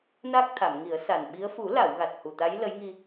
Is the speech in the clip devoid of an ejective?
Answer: yes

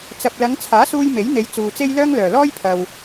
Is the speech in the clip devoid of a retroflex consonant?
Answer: yes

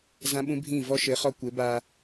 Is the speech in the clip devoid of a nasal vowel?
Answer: no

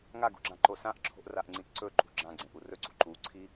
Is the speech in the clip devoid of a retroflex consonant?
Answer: yes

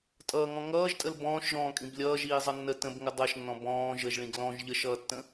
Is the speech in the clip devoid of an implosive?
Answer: yes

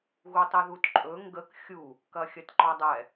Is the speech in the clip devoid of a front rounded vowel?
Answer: yes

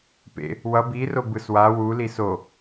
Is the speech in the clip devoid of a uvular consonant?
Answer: yes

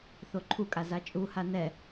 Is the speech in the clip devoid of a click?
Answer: no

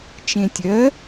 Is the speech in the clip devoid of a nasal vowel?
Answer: no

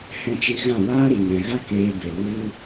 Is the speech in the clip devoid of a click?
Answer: yes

